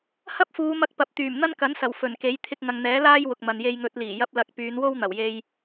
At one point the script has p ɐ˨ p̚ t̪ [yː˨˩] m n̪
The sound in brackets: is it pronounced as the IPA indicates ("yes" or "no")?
yes